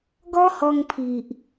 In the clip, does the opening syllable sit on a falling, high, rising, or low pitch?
high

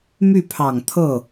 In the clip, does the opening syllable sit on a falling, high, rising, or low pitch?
falling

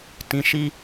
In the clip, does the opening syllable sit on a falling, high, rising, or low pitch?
low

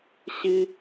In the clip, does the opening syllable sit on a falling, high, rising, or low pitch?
high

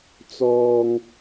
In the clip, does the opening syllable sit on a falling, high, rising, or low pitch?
low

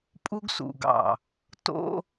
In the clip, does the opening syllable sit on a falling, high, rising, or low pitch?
high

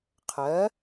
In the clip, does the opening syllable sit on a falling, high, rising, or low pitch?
rising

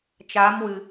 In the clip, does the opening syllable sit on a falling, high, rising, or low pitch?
rising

